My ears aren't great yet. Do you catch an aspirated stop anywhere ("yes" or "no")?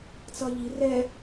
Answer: no